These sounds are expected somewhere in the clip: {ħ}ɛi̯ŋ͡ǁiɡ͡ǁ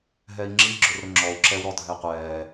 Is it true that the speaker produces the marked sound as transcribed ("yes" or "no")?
no